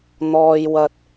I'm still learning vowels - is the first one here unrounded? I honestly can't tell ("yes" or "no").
no